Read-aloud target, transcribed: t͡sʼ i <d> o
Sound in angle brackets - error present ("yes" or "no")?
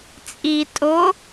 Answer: yes